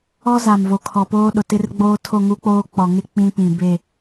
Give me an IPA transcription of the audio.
ɔ˦ z a˨ m v o˨ kʰ ɔ˨ p oː˦ ɗ ʊ˨ t ɪ˦ r ɡ͡b oː˦ tʰ o˦˨ ŋ u˦ k͡p oː˦ k͡p ɔ˨ ŋ ɪ˦ k͡p ĩ˦ p ĩ˨ b e˦˨

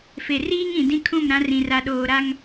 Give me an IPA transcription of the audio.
f e˨ r iː˦ ŋ ĩ˨ d ĩ˦ kʰ ũ˦˨ m ɾ ã˦ r ĩ˨ r a˨ ɗ oː˨ ɾ a˦ ŋ

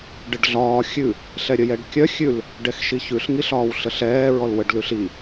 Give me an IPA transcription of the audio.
ɖ ə ɖ ɮ ɒː xʲ ʉ | ɬ ɛ ɾʲ ə j ɛ ɖ kʲ œ xʲ ʉ l | ɖ ɛ x ʃ i ç ʉ ɬ ŋ i ɬ ɒː w ɬ ə ɬ ɛː ɹ ɔ l w ə ɖ l ʉ ɬ i

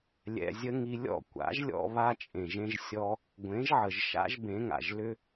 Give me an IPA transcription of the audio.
lʲ ɛ̰˧ zʲ ə˦ ŋ i˧ lʲ ɔ̰˦˨ kʷ a̰˨˦ ʒ lʲ ɔ̰˧ β a˧ t͡ʃʼ ẽ˨ ʒ ẽ˧ ʒ sʲ ɔ˧ | ɡʷ ẽ˨˦ ʒ ʕ ə˨ ʒ ʃ a̰˦ ʒ b ẽ˨˦ ŋ a̰˨ ʒ l ʏ˦

